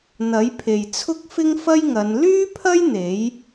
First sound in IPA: n̪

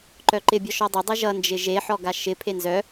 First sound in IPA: ǃ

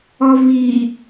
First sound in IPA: ɔ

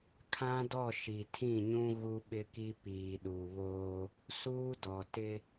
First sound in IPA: kʰ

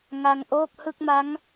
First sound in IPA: ŋ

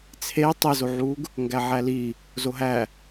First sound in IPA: t͡sʰ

